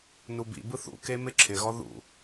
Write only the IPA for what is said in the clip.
nubḭbɯ θṵke mɪǁʰɪɣɔ ðṵ

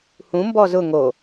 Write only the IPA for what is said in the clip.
hũ mbɔzʊ ŋo

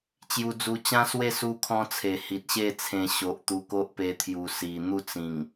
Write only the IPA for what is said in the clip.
t͡ɕju˧d͡zu˧t͡ɕã˦swe˥˧ su˧kʰɔ̃˧t͡sʰe˨˩ hi˨t̚ɕe˥˧t͡sʰẽ˧ ɕo˨ʔt̪u˧ ko˦ʔpe˧t̪ʰju˨˩ si˨˩ n̪u˥˧t͡sĩ˨˩ŋ

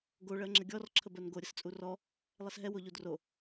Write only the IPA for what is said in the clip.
ɡo ɭɜŋ͡ǁəɡʲɔr ǁʰəbɜnɡo ɾʲəst͡sʼurɔ | lˠɛsɦɛ woʎudro

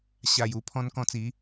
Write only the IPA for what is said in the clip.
ɕa˨˩ju˥˧ pʰɔ̃˧nkɔ̃˧t͡si˨˦

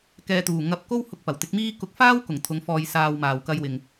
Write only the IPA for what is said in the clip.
kɛː˨t̪uː˨˩ ŋɐ˧p̚ ko˥whʊ˧k̚ pɐ˨˩wt̪ɪ˨˥k̚miː˥ kʊ˨˥k̚faː˥wkʊ˨˩ŋ t̪ʰʊ˨˥ŋfɔː˧j saː˧wmaː˨w kɐ˧jwɪ˨ŋ

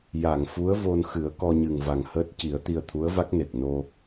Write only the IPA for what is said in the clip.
ja˨˩˨ŋfu˧˥ə̯vo˧nxɨ˨˩˦ə̯ kɔ˧ɲɨ˨˩ŋva˨˩ŋhəː˦˥t̚ ci˨˩˦ə̯t̪i˧ə̯ t̪ʰu˧˥ə̯va˦˥k̚ne˨˩k̚ no˧

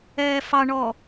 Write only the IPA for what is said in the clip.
ɛːfɑɳɔ

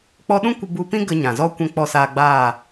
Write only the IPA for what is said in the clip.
k͡pɔ˧ɗũ˦ kʷə˧bu˧pĩ˦ ɡə˧ɲã˨zɔ˦ kʷɛ̃˧k͡pɔ˧saː˧ɡ͡baː˦˨

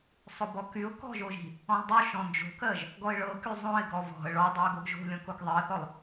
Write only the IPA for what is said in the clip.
sˤobɔkyʊ̯ kɔ̤ʒoʒi̤ | ɔ̃lˠdˤoʃɔ̃ nd͡ʒo̤kɜʒ | ɡɔɪ̯ɭɤky zˤõɪ̯ɡɔ vɔ̤ə̯ ɭɔ dˤɤə̯ɡoɡʒo̤ lʲɔ̃kokðˤiə̯θɔlˠ

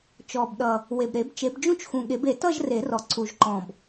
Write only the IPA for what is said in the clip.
t͡ʃɔ˨˩bɗʌ˨˩ | we˨˩b ɾe˨˩˦bt͡ʃe˨˩˦bd͡ʒũ˥˧t͡ʃ xũ˨˩ɠe˨˩˦be˨˩˦ tʌ˥˧ʒre˨˩˦rɔ˨˩ ǀu˨˩ʒǃɔ̃˨˩b

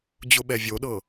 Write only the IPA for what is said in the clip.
d͡ʑʊɓɛvʲoɗɤ

